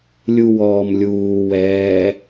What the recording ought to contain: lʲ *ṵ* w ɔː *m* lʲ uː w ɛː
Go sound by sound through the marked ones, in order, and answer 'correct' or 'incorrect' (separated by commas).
incorrect, correct